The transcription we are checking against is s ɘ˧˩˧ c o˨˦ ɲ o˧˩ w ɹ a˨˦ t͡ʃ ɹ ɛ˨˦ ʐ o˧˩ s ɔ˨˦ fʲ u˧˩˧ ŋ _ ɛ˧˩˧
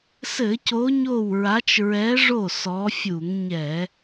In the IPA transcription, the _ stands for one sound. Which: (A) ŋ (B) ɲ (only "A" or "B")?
B